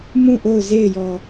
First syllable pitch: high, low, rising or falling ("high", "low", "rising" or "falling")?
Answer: falling